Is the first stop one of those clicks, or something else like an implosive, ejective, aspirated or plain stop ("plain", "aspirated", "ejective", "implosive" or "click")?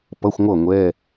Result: plain